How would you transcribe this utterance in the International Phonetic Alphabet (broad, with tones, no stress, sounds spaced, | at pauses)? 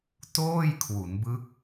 t oː˥˩ j kʰ w u˩˦ n b ɯ˦˥ k̚